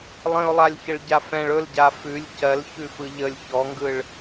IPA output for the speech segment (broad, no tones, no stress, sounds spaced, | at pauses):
lˠ ə̃ ʊ̯ lˠ a lʲ ç ə ɭ ɟ a f ɛ̃ ɭ ɵ l ɟ a f ʉ lʲ c ɜ l ç ʉ f ɯ ʎ ə lʲ ç ɔ ŋ ɡ ɯ ɭ